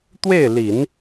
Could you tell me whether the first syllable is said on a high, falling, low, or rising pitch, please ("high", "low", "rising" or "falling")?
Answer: falling